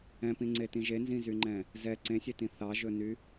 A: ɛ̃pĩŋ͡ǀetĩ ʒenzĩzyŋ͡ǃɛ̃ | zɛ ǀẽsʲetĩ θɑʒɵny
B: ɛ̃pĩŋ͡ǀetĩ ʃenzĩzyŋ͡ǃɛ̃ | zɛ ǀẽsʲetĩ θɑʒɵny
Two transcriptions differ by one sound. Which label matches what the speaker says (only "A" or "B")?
A